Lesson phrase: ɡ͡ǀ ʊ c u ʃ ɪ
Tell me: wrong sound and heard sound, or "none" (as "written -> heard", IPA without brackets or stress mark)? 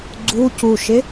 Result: ʊ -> u